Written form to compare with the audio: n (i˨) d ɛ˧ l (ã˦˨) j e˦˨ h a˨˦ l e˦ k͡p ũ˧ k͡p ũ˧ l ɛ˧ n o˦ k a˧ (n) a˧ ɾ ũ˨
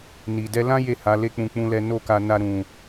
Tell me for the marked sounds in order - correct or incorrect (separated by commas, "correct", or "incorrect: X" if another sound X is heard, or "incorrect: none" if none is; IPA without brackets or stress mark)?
correct, incorrect: ã˦, correct